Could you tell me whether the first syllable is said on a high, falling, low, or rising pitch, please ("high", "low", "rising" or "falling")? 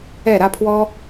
falling